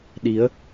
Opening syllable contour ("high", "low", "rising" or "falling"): rising